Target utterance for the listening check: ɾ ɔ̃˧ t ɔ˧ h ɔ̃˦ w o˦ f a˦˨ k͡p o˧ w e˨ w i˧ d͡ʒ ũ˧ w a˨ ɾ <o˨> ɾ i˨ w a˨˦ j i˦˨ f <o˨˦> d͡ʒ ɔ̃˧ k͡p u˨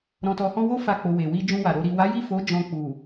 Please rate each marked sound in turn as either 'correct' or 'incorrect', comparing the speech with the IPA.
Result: incorrect: o˧, correct

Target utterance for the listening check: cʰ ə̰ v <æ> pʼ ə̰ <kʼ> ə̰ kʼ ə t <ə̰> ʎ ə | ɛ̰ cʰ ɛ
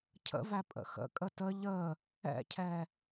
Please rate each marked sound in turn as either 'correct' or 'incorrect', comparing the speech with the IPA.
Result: correct, incorrect: x, incorrect: ə

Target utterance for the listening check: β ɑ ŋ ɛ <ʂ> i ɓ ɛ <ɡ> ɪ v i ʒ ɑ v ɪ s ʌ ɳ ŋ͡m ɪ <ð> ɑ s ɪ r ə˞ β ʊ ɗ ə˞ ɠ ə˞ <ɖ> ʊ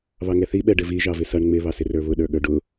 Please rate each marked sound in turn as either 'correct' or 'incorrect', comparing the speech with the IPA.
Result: incorrect: θ, incorrect: ɖ, incorrect: β, correct

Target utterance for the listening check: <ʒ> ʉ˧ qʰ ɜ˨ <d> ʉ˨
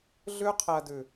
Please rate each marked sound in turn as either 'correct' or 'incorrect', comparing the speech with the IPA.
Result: incorrect: ɮ, correct

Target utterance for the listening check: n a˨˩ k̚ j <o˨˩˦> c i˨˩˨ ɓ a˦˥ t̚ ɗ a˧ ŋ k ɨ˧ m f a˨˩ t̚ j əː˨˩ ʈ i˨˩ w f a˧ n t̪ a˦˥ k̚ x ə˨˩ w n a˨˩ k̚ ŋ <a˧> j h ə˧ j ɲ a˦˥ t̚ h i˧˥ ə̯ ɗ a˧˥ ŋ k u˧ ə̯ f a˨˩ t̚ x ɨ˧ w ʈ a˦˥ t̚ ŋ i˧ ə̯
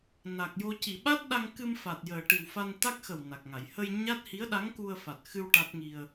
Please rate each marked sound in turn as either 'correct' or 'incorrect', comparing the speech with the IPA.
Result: incorrect: o˧, incorrect: a˨˩˨

